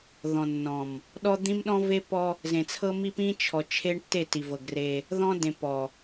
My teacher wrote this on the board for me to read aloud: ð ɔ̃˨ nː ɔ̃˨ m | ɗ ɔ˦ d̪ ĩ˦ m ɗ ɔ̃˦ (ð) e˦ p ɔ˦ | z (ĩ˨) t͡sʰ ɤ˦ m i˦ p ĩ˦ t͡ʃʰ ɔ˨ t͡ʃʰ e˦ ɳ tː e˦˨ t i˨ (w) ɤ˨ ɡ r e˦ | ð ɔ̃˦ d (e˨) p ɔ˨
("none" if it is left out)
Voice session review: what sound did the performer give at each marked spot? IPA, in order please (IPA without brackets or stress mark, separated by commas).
v, ẽ˨, v, ẽ˨